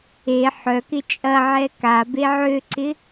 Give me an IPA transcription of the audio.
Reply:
e ħœ kɪt͡ʃʼɐʕɛ ka beʕøǀɪ

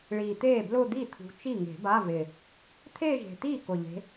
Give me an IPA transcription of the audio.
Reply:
ɭiː˨˩t̪eː˥˩blʊː˥˧ d̪i˥˩t̪ʰṳ˨˦ t͡ʃi˥˩ŋe̤˨˩˦ba˧˥˧vɪ˨˩ | t̪ʰeː˥˧ʒe̤˨˩t̪iː˥˩ kʊ˨˩ʎe̤˨˦

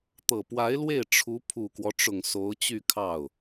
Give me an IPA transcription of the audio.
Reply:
t̪ɤ˨˩ pwa˧˥ɪ̯lwe˥˩ɪ̯ ʈ͡ʂʰu˧˥ pʰu˨˩kwɔ˦ʈ͡ʂʊ˨˩ŋ so˧˥ʊ̯t͡ɕy˥˧kʰɑ˥˩ʊ̯

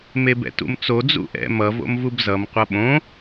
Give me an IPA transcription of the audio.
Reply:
mebɛ̰tṵmt͡so d͡zṵʔɛ̰ mʌ vo̰mvubzʌm qʷʌɓõ

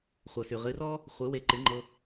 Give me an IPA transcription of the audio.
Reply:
χʷɤ˩sy˩ʁɨ˩˥rɔ˥ | χʷɨ˩˥we˧ǃɨ˩˥ŋ͡ǃɤ˧

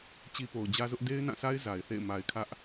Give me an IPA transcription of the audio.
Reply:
t͡ɕi˦po˨ʊ̯ d͡ʑä˦zʊ˦ʔ de˦ɪ̯nã˦˨sʰa˦ɪ̯ za˨ɪ̯θḛ˦˨ɪ̯ ma˨ɪ̯kʰä˦ʔ

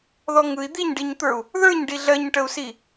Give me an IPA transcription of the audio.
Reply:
ðɔŋɯi̯ d̪iɲɖiɲt̪ə˞u̯ | ðə˞ɲ ɖiɮɜɲʈəu̯si

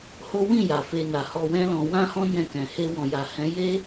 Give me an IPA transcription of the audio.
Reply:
ho˦ wĩ˦˨ ja˨fe˧na˨ hɔ˧wɛ̃˦lɔ̃˧ wã˦hɔ̃˦ nɛ̃˦˨kɛ̃˨ he˧wɔ̃˨ja˨hɛ̃˨˦ je˦

